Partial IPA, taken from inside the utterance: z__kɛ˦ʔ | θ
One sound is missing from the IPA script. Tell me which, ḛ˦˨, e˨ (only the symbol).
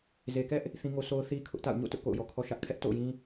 e˨